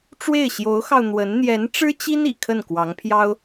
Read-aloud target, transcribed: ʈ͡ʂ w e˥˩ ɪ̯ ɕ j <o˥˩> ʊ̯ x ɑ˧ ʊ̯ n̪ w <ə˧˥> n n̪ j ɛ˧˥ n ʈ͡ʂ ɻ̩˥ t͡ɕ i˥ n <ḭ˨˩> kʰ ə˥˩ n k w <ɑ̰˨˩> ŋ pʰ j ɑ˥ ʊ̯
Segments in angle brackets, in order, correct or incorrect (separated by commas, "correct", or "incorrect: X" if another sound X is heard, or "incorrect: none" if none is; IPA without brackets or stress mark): incorrect: o˧˥, correct, correct, incorrect: ɑ˧˥